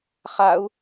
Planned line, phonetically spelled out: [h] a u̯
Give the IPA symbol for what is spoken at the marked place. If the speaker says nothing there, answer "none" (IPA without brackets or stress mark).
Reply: χ